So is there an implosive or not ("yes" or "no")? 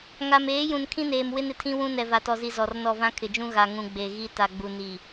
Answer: no